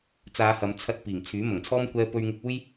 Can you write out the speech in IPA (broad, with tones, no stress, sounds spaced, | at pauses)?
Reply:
t͡s aː˨˧ h ɐ˨˧ m t͡sʰ ɐ˧ t̚ p iː˨˩ ŋ t͡sʰ yː˨˥ m ɐ˨˩ ŋ t͡sʰ ɔː˥ m kʷ ɛː˧ p ɵ˧ ɥ ŋ ɪ˧ k̚ uː˥ j